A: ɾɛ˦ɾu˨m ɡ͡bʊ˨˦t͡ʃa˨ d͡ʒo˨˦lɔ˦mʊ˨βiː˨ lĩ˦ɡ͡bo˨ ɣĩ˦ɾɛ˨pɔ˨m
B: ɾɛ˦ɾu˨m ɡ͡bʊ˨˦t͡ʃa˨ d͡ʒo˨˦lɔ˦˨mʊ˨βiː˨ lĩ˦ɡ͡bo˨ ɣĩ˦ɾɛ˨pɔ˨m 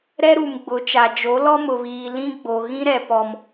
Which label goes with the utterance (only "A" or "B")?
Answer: A